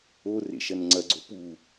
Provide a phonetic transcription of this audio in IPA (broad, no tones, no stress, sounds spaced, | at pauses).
o r ḛ ʃ ɐ n ŋ͡ǀ ɐ ɡ͡ǀ o p u